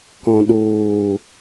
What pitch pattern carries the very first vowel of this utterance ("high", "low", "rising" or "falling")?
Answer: low